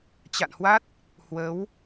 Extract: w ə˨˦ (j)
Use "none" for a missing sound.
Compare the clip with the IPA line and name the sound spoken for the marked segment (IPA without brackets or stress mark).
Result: w